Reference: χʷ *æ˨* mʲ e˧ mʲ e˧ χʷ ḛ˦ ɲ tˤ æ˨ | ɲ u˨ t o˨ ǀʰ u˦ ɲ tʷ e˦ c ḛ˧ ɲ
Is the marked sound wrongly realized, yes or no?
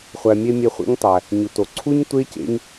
no